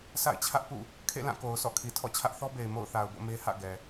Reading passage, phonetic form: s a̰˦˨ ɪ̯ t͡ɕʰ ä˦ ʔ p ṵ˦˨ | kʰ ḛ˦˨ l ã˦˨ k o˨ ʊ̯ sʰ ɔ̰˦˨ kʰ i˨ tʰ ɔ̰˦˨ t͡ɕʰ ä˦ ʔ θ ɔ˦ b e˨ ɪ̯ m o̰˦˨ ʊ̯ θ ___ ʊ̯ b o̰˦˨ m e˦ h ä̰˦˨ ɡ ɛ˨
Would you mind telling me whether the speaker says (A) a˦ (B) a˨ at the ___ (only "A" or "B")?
B